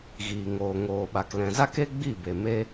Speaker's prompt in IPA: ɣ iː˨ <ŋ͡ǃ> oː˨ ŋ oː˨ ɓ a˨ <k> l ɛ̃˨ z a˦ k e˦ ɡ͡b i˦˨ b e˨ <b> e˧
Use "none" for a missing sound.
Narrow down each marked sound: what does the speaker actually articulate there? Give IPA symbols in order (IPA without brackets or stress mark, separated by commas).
ŋ, k, m